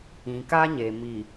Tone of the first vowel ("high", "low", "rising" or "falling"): low